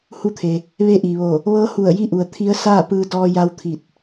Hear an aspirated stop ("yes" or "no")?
yes